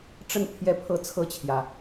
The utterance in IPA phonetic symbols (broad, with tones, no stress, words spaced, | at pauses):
ʈ͡ʂə˥˧n pʰjɛ˥˧pʰɤ˥˧ t͡sʰɤ˥˩t͡ɕʰjä˩